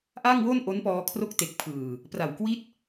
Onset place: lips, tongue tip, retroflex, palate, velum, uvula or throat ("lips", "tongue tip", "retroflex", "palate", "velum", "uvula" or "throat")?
throat